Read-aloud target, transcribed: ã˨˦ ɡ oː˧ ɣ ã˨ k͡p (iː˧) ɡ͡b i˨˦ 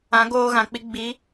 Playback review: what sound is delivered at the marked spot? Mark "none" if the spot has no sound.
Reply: i˧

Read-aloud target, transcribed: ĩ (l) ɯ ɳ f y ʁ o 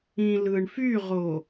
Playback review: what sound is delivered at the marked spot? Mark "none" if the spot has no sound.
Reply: l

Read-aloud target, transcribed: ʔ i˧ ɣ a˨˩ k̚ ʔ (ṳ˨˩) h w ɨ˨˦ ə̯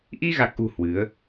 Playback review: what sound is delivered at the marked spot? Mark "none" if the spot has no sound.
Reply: ṳ˨˩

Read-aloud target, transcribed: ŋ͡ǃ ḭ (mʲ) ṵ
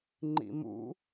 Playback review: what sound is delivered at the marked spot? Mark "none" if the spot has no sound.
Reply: m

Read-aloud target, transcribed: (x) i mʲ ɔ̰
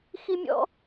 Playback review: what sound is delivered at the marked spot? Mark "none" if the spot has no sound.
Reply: x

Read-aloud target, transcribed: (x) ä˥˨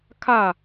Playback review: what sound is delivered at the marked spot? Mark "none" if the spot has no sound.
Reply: kʰ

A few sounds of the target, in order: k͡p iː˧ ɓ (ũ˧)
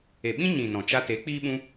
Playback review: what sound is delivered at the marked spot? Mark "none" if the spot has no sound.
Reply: ũ˧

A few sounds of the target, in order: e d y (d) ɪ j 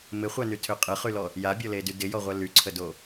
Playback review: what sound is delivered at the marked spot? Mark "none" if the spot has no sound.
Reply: d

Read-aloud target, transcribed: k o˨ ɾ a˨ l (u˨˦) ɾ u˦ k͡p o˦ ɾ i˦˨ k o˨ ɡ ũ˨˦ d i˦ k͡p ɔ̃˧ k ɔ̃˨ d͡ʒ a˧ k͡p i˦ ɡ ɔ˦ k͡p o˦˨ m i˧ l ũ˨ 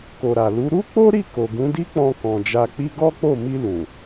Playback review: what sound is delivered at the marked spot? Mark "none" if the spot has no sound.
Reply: u˨˦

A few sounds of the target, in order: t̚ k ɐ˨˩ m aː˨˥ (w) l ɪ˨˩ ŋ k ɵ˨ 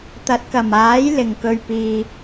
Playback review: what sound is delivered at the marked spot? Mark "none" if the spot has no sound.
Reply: j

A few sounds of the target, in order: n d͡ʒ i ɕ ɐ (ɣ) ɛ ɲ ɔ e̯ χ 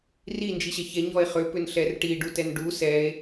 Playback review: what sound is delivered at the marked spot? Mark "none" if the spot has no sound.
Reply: ç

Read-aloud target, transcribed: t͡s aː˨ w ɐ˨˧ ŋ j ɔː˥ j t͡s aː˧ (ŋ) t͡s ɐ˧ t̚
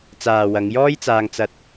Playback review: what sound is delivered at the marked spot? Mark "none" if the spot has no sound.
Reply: ŋ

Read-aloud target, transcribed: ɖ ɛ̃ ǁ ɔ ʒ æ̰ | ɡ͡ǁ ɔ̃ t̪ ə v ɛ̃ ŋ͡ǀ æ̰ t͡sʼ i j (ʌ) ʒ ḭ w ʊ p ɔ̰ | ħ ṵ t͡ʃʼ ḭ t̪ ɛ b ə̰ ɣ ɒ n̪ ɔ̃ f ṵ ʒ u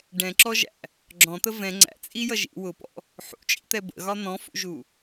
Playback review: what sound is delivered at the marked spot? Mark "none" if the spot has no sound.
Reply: ʌ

